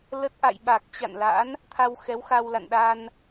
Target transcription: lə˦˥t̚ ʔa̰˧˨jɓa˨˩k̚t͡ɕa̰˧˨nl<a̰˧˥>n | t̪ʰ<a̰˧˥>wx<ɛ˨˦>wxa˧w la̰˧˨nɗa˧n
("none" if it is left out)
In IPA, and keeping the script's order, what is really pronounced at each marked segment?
a̰˧˥, a˧, ɛ˨˦

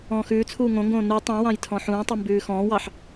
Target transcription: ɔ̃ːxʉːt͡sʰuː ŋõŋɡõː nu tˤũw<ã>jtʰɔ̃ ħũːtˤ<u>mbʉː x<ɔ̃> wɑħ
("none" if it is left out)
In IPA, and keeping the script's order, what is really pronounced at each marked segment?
ɑ̃, ʉ, ɔ̃ː

